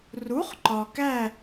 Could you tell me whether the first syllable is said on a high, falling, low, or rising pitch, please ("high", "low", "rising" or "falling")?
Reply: rising